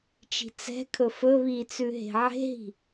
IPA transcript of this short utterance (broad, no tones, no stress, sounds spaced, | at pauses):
t͡ʃ i̤ t͡s ɛ̤ kʰ ɵ f ɵ β i t͡s ʉ ɦ e̤ ʕ e̤ ɦ i̤